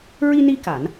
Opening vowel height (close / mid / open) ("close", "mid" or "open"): close